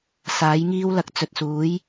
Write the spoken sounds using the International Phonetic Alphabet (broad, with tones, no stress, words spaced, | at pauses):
saː˨˥jŋiː˥wlɐ˨˥k̚ t͡sɵ˨t̚suː˨˥j